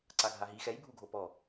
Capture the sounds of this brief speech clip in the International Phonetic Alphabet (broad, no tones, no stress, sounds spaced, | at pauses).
ǀ a ɡʱ a ɦ i x ɛ j bʱ u ɡʱ o p ɔ